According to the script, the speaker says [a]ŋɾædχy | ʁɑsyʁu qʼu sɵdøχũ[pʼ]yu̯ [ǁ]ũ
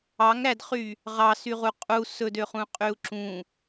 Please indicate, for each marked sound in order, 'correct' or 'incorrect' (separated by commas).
incorrect, incorrect, correct